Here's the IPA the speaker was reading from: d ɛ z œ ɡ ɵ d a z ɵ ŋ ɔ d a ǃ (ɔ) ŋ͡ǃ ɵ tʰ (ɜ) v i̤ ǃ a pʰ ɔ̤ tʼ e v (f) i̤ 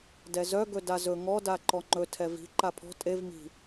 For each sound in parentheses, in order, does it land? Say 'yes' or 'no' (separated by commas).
yes, no, no